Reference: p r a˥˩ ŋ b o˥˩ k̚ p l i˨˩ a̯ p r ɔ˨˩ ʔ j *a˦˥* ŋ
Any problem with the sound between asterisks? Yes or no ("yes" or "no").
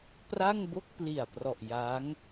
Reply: no